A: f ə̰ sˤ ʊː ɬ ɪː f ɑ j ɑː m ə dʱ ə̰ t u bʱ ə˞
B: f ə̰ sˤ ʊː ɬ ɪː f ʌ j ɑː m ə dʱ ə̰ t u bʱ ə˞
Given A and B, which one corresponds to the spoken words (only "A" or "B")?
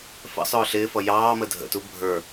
B